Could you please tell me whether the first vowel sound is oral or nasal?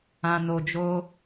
nasal